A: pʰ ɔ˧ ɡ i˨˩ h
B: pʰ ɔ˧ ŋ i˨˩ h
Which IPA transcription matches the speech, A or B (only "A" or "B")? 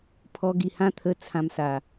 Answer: A